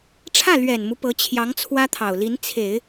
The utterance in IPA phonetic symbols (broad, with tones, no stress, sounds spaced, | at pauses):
ʈ͡ʂʰ ä˥˩ l ɥ ɛ˨˩ n m u˦ p ɤ˧˥ t͡ɕʰ j ɑ˧˥ ŋ t͡sʰ w ä˥ t̪ʰ ɑ˨˩ ʊ̯ l i˧˥ n t͡sʰ e˨˩˦ ɪ̯